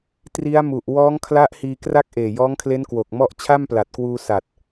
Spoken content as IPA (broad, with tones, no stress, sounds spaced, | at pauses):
t r i˦˥ a̯ m u˨˩ ʔ w ɔː˦˥ ŋ kʰ l a˦˥ ʔ h iː˧ k r a˥˩ k̚ ʔ eː˨˩ j ɔː˦˥ ŋ kʰ l e˦˥ n k w o˨˩ k̚ m ɔ˥˩ ʔ t͡ɕʰ a˥˩ m p l a˨˩ t̚ k w uː˧ s a˨˩ t̚